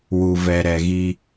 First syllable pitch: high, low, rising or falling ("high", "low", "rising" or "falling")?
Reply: low